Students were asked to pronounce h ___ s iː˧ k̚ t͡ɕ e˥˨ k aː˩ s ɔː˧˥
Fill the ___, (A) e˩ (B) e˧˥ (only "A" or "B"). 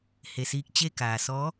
A